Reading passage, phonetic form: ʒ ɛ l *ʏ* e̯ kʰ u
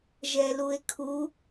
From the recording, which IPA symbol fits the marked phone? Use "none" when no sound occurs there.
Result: u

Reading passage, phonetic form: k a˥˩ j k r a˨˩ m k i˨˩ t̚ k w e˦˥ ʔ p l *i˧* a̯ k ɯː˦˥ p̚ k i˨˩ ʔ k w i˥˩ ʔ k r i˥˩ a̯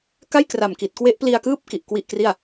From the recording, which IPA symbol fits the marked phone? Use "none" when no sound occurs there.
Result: i˧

